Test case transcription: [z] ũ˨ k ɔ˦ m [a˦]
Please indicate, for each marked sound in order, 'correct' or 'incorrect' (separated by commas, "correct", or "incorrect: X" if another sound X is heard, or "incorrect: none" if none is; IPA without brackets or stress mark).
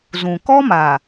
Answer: correct, incorrect: a˨